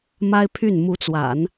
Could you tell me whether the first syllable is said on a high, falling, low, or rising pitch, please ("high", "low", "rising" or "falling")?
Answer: high